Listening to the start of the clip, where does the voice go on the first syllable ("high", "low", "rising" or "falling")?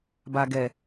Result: low